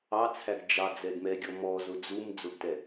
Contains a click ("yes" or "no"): no